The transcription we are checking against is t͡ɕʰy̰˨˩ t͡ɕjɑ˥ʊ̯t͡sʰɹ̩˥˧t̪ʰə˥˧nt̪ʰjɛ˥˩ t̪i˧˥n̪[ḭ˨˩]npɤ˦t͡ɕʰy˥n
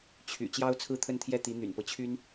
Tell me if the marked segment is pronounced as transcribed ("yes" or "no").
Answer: no